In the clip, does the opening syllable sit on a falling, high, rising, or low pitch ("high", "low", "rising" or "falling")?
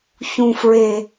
low